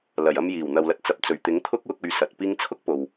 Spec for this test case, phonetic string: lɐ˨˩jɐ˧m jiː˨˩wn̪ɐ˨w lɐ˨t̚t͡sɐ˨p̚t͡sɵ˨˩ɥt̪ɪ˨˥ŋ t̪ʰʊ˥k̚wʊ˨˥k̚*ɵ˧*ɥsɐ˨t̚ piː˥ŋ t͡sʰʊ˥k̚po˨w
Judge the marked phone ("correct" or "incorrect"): correct